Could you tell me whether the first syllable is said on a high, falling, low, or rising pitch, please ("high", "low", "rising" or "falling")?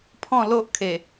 falling